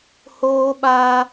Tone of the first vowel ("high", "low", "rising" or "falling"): high